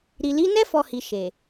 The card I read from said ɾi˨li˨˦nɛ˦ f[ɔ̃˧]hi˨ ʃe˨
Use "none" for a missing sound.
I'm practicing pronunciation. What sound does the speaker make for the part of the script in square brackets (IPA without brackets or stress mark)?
ɔ˧